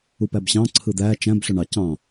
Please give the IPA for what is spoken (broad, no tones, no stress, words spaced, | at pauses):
upæbɕɑ̃ ǀʰɯd̪æ t͡ʃæ̃b ɬøɳɑ cɑ̃